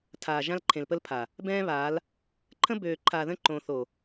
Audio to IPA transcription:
tʰ aː˨ ʒ ã˦ l ǃʰ ẽ˨ l p ə˦ l pʰ a˨ | b ɛ̃ː˦ β aː˨˦ l | ǃʰ ə̃˦ b øː˨ ǃʰ aː˨ ð ə̃˦˨ ǃ õː˨ θ o˨

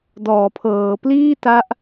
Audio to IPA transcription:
d ɔː˩˦ pʰ ɤː˩˦ p l iː˥˩ t a˦˥ ʔ

